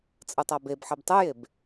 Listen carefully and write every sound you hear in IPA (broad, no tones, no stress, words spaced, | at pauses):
t͡sʼɯtˤabebħɛb tˤɯjeb